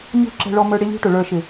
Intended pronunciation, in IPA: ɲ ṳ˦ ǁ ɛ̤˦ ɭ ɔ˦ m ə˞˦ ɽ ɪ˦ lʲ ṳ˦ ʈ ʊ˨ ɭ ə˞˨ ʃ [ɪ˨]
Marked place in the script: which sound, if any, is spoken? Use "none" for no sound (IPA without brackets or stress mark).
ɪ˨